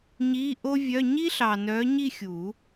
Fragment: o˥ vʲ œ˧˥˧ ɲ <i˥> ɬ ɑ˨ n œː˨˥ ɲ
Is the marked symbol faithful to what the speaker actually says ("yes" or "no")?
yes